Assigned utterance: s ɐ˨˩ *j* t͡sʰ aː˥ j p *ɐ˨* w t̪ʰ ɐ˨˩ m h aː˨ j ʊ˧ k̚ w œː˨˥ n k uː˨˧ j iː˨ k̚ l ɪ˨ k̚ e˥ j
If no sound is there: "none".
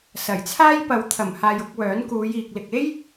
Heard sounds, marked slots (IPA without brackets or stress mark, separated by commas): j, ɐ˨